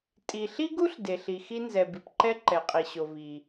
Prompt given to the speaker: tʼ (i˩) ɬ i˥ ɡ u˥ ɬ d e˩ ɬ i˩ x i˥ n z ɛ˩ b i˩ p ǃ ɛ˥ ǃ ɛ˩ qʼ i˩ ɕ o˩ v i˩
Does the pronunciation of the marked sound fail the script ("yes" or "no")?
no